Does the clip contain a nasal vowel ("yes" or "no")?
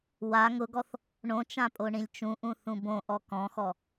yes